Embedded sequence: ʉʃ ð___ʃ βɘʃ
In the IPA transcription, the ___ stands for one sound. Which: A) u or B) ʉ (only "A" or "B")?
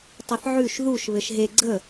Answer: A